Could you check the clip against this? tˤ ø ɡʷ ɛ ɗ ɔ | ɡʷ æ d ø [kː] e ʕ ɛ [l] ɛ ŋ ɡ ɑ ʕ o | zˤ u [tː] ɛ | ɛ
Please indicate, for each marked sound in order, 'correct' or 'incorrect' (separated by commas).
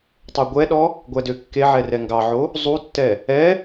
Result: correct, incorrect, correct